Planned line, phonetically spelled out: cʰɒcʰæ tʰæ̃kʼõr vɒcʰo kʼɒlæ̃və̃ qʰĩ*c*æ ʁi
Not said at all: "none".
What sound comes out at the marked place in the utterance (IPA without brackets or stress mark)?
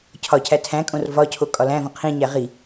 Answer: ɲ